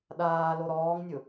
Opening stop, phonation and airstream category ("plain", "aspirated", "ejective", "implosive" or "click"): implosive